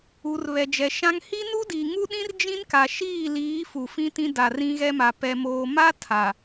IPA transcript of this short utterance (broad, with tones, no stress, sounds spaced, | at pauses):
u˨ r β ɛ˨ d͡ʒ ɛ˨ ʃ ã˦ ŋ h i˦ n u˦ d i˨ ŋ u˦ ɗ ĩ˦ r d͡ʒ ĩ˦ n k a˨ ʃ iː˦˨ l iː˨˦ f u˨ f ĩ˦ t ĩ˦ d a˨ r ĩ˦ ɣ ɛ˦ m a˨ p ɛ˨ m oː˨ m a˦ tʰ a˨